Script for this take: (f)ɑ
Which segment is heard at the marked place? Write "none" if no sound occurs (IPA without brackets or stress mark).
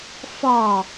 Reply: f